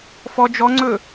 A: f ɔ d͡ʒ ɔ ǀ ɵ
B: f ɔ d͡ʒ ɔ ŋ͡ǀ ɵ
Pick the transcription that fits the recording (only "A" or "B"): B